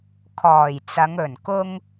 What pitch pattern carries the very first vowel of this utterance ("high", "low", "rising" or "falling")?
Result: low